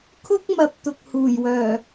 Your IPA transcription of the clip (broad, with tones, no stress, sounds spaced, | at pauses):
kʰ ʊ˥ k̚ m ɐ˧ p̚ t̪ ʊ˨ k̚ h uː˨˩ j w œː˨˩